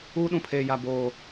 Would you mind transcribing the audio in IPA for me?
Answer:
uː˦ɗũ˨pʰeː˨ ja˨ boː˦˨

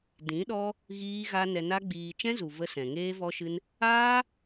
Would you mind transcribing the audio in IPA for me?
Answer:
dĩ˨˦ɗɔ˦ | ɣiː˦ɣa˦ nɛ˧na˦ɡ͡biː˧ t͡ʃɛ̃˦zu˨ və˦sɛ̃˨ ŋeː˦vɔ˦ʃɨ˦n | aː˦

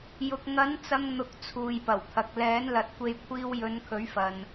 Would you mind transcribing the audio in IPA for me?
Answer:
jʊ˨k̚ ŋɐ˨˥n t͡sɐ˧ŋn̪ʊ˨k̚ t͡sʰuː˨jpɐ˨˩wt̪ʰɐ˨k̚ lɛː˨˥nlɐ˨t̚kʷe˧j kʷʰiː˧wjɵ˨˧n kʰɵ˨˥ɥfɐ˨n

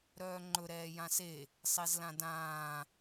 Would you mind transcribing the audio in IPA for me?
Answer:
ɾœːŋ͡ǃɵ ɾɛːjãse | sˤezlãdãː

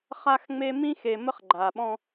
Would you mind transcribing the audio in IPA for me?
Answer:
χa˦xŋ͡me˦ mĩ˦xe˨mə˦χ ɡ͡ǃa˨ ɓɔ̃˦

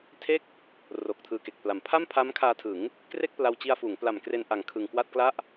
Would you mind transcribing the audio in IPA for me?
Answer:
tʰe˥˩k̚ | ro˨˩k̚tʰɯː˧ke˨˩k̚pla˨˩m pʰa˥˩mpʰa˦˥m kʰaː˧tʰɯ˩˦ŋ | kre˥˩k̚pla˧wt͡ɕi˧a̯fuː˩˦ŋ pla˨˩m kre˧nʔa˨˩ŋkʰɯ˨˩ŋ kwa˥˩t̚kla˥˩ʔ

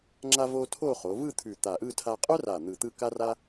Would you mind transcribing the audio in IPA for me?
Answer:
ŋ͡ǁa˧vo˧ tʰo˥˧χo˩˧ vɯ˥˧ t̪ʰʉ˧˩t̪a˧˩ʔɯ˥˧ tʰa˧qʼœ˥ra˧˩ n̪ɯ˧˩t̪ɯ˥˧ ka˥ra˥

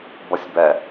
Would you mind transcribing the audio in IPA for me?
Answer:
bʌsʲbɛ

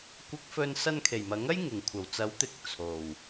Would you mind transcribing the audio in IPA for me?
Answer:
kʷɪ˧k̚fɵ˧n sɐ˧nkʰe˨˩jmɐ˨˥ŋɐ˥j ŋɪ˨˩ŋkʷʰɐ˨˩wt͡sɐ˨˥wt̪ɪ˨k̚ t͡sʰo˨˩w

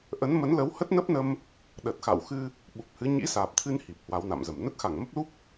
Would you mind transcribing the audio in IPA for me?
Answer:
ʔə˨˦nmə˨˦nlə˨˦w hə˦˥t̚nə˦˥p̚nə˧m | ɗə˨˩t̚xa̰˧˨wxɨ˧ | ɓu˨˩p̚hɨ˨˦ ɲḭ˧˥saː˨˩p̚t̪ʰɨ˧n hi˨˩p̚hwa˨˦wna̰˧˨mzə˧˩m nə˦˥t̚xa˧˩ŋmə˦˥p̚lu˦˥p̚

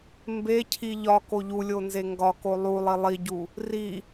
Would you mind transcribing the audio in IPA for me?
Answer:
mbecʰi ʎɒ koʎulʲo nzeŋɡɒko lˠulˠi lˠiɟu | ri

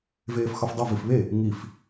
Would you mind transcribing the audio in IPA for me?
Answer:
veːfxɒfdˤu vifβe | ŋif

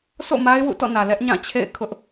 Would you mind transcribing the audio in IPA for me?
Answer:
sʰo̰˦˨ ma˦ɪ̯wṵ˦˨tɔ̰˦˨nä˨ lɛ˦ʔɲã˦˨ t͡ɕʰḛ˦˨ɪ̯kʰʊ˦ʔ

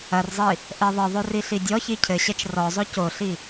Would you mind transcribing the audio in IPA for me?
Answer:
ɐrzˤi | ʔɛðˤɘðˤor iɬidʲɔçi cʰɘɕɛt͡ʃ rɔzˤo coɬi

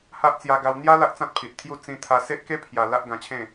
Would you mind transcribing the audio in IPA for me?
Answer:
ha˦ʔ t͡sja˧ɡa˧w n̪ja˦ la˦ʔt͡sã˦t̚pʰi˨t̚t̪ʰju˥˧ t͡sĩ˧t̪ʰa˧ se˦ʔke˦ pʰja˧ la˦ʔɡã˧t͡ɕʰẽ˥˧

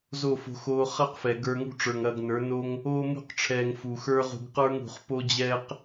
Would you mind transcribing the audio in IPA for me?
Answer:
zo˦˨fo̤˧xoː˧ χɐ˦qfɛ˨ ɡə˞˧ŋṳ˦ʈ͡ʂə˞˨ŋɐː˧ɡ nə˞˨˦ no˦ŋ | oː˧mṳ˧qʈ͡ʂʰɛː˨ŋ fu˨xə˞˦ʁṳ˧ɡ qə˞˦ŋṳ˨χpo˦d͡ʑɛː˦q

